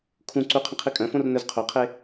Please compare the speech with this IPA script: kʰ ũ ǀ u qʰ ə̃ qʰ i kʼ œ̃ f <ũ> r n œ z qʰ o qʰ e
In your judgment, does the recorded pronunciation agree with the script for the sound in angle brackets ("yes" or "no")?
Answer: no